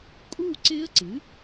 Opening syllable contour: falling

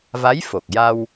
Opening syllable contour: rising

